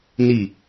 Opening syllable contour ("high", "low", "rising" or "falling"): falling